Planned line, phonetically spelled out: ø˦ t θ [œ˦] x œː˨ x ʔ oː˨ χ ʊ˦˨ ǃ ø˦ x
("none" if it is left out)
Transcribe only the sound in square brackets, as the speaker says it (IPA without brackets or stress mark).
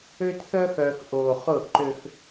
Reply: œ˦